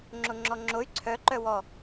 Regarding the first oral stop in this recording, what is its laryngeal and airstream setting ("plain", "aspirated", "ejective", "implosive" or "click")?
click